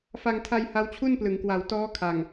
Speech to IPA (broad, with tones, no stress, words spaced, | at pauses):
fa˧ŋtʰa˧j ha˦˥wt͡ɕʰu˥˩nplɯ˩˦ŋkwa˨˩w tɔː˦˥ kʰa˨˩ŋ